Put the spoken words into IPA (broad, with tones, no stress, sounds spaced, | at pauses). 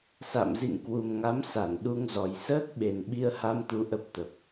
s a̰˧˨ m z ḭ˧˨ ŋ k w u˨˩ m ŋ a˨˦ m s a˧˩ n ɗ u˧ ŋ z ɔ˨˩ j s əː˦˥ k̚ ɓ e˨˩ n ɓ i˧ ə̯ h a˧ m t̪ u˨˦ ʔ ə˦˥ p̚ t̪ ə˨˩ p̚